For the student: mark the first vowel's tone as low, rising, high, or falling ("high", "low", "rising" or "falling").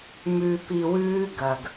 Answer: low